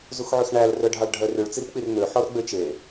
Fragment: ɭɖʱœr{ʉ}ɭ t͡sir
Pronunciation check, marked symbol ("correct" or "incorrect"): correct